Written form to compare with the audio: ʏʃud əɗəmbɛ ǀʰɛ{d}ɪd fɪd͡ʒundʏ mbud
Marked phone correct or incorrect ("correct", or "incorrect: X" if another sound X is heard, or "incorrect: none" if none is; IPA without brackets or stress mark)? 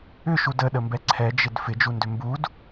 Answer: incorrect: d͡ʒ